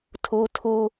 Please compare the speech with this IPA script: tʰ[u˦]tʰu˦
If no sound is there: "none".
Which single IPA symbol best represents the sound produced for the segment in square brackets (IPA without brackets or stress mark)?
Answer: u˦